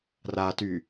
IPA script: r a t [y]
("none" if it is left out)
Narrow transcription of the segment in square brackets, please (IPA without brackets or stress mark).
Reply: y